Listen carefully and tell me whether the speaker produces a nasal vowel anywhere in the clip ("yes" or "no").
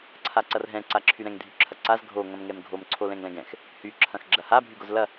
yes